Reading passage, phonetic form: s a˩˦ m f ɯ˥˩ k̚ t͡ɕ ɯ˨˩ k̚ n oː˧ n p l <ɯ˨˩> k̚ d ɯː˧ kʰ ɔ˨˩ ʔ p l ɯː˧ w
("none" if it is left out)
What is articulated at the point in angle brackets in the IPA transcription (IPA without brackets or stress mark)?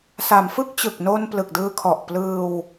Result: ɯ˨˩